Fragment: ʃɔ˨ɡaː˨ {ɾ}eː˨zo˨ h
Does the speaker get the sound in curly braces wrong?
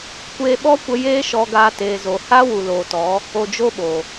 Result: yes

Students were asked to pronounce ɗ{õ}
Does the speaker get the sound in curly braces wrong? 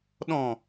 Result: yes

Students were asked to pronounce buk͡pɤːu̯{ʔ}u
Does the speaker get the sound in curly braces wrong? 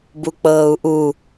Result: no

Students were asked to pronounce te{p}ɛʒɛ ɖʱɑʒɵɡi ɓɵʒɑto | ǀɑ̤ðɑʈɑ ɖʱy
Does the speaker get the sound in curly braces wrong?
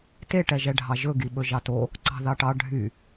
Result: yes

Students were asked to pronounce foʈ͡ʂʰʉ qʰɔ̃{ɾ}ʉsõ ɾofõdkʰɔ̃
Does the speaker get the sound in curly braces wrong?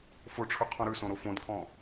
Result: no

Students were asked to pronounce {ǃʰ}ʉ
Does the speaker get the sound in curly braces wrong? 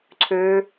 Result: yes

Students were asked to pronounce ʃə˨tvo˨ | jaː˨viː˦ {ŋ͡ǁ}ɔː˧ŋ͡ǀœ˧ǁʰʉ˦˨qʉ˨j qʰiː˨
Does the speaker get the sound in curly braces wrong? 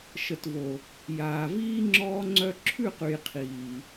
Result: no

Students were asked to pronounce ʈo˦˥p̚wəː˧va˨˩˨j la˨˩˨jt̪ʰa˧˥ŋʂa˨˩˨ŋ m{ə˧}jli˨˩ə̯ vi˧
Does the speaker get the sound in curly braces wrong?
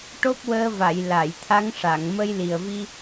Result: no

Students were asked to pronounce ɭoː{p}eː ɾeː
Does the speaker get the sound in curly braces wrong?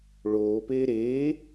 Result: no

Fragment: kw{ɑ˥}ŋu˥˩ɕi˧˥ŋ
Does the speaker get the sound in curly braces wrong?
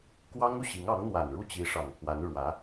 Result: no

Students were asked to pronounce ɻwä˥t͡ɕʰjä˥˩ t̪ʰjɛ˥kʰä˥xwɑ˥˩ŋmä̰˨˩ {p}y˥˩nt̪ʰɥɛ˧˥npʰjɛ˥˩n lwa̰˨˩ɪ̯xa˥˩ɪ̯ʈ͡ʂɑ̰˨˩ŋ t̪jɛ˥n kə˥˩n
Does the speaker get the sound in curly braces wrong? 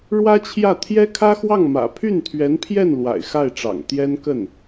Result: yes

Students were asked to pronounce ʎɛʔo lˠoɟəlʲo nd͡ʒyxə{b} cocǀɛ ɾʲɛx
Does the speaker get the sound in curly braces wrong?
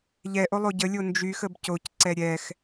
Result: no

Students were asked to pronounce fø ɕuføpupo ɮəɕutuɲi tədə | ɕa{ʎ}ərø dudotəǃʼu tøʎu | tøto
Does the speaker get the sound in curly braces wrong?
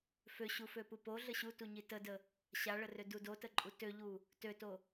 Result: yes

